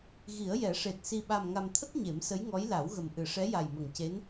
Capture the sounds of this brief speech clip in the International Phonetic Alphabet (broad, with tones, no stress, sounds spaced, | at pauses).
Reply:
ɣ i˨˩˦ ə̯ j ɛ˨˩˦ ʂ e˨˩ t̚ s i˨˩ ɓ a˨˩ m ŋ a˨˩ m t̪ʰ ə˦˥ k̚ ɲ e˨˩˦ m s ə˧˥ j ŋ ɔ˧˥ j l a˨˩˦ w ɣ ə˨˩ m ʔ ɨ˨˩˨ ʂ ɛ˧˥ j a˨˩ j m ə˨˩ ŋ c e˧˥ n